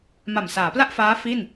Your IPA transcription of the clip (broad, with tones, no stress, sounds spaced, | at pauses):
m a˨˩ m s aː˩˦ p l a˥˩ ʔ f aː˦˥ f i˥˩ n